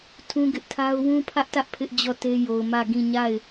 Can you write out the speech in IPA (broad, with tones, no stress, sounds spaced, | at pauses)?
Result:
tʰ ũ˦ ɡ ɪ˦ ʔ tʰ a˦ ʊ̯ w ũ˦ pʰ ä˦ ʔ t ä˦ ʔ pʰ ɪ˦ ʔ d͡ʑ ɔ˦˨ t e˦ j o˨ ʊ̯ m ä˦˨ ɡ ĩ˦˨ ɲ a˦˨ ɪ̯